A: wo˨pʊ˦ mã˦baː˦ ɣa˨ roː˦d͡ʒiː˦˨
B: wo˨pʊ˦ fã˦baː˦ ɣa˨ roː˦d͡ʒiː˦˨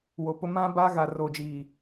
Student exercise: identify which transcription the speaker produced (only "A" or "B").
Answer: A